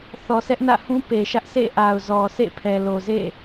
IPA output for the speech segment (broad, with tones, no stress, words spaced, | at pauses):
θɔ˨sʰɛ˦ʔnä̰˦˨hũ˦ pe˨ʃä˦ʔ sḛ˦˨ʔa˨ʊ̯zɔ˨sḛ˦˨ pʰɛ˨lo˨zḛ˦˨